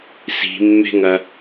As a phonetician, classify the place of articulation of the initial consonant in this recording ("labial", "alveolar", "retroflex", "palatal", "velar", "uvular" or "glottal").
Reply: alveolar